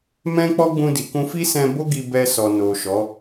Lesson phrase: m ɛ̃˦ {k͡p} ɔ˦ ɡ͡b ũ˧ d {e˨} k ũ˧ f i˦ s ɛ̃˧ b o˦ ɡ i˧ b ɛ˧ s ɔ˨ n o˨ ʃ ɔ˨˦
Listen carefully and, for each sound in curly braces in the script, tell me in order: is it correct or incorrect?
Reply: correct, incorrect

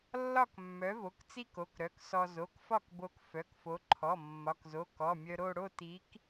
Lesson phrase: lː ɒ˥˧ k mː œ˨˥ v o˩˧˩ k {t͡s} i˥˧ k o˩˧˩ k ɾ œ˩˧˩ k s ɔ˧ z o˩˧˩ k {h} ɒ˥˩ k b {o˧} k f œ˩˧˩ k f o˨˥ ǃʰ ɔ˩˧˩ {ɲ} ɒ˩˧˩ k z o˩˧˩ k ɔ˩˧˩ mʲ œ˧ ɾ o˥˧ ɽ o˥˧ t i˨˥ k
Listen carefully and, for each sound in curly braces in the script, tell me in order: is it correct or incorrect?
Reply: correct, incorrect, correct, incorrect

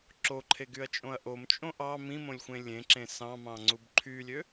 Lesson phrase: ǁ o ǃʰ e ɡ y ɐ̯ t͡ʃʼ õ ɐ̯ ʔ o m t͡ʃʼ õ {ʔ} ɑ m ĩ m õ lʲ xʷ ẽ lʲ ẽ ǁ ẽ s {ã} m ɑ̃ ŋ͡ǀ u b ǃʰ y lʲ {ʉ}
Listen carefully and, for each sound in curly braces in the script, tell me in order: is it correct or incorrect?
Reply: correct, incorrect, incorrect

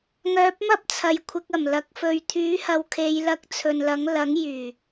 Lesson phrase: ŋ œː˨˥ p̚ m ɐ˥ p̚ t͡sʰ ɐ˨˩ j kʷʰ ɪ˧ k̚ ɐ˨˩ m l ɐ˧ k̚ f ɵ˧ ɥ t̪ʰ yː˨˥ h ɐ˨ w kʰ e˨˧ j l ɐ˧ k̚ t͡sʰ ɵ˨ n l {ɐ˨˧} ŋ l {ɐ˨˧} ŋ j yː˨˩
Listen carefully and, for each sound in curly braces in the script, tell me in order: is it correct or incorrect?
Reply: incorrect, incorrect

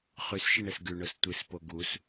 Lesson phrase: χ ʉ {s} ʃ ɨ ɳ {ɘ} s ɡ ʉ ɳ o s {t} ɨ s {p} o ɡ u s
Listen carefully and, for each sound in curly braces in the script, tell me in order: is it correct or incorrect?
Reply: correct, correct, incorrect, correct

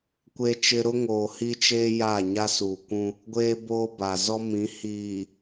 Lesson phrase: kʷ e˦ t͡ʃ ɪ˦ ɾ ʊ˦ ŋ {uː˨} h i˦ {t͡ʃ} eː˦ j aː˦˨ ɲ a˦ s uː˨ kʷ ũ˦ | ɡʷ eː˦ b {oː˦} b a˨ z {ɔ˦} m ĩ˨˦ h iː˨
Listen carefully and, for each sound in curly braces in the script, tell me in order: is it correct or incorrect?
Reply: incorrect, correct, correct, correct

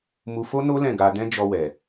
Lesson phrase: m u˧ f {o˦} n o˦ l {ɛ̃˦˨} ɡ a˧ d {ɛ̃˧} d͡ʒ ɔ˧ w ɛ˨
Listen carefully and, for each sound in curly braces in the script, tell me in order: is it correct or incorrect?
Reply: correct, correct, incorrect

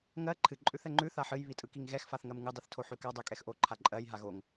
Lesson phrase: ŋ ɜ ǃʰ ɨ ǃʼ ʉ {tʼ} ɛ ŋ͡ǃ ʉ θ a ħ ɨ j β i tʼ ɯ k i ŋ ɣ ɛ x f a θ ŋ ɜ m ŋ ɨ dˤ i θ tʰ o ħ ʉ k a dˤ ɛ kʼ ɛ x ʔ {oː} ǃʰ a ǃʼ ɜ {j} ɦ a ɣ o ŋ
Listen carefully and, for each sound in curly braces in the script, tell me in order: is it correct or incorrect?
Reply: incorrect, incorrect, correct

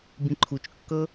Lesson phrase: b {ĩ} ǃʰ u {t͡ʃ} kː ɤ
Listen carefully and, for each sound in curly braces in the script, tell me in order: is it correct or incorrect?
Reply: correct, correct

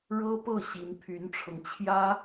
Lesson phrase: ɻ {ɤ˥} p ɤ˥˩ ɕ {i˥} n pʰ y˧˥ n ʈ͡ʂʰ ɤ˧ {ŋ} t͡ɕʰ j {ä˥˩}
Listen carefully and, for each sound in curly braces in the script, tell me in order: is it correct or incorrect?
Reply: correct, incorrect, correct, incorrect

